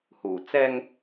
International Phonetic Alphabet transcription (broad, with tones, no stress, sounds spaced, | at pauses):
h uː˨˩ t͡s ɛː˧ ŋ